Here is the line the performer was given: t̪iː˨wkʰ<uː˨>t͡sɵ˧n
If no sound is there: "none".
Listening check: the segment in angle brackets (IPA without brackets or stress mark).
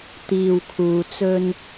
uː˨